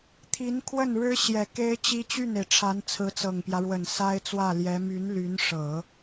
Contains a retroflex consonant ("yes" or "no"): yes